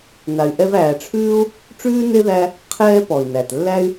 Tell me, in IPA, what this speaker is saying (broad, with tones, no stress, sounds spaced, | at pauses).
n a˨ y̯ ʔ ɛ˦ v æː˨ ʈ͡ʂʰ ʉː˥ u̯ | ʈ͡ʂ ʉː˥ n e˥ ð æ˦ | qʰ ɛː˦ p ɔ˩ i̯ n æ˩ t lː æ˦ y̯